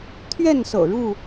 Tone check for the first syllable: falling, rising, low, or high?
falling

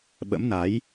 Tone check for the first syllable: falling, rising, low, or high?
rising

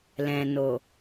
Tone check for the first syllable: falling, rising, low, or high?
low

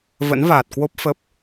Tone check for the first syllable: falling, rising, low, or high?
rising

